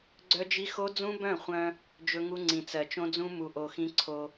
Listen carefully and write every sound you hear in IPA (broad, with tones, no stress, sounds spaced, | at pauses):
ɡ͡ǀ œ˦ d͡ʒ i˦ x o˦ d͡z ũ˦ b œ̃˦˨ χʷ œ̃˦ | d͡ʒ ɵ˦ ŋ u˦ ŋ͡ǀ ĩ˨ t͡s ɜ˨ t͡ʃ õ˦ d͡z ũ˦ m u˨ ʔ o˨ x ĩ˦ ǀʰ o˦